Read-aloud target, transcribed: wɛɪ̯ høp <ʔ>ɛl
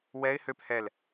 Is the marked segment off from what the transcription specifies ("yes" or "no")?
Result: yes